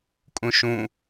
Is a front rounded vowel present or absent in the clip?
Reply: absent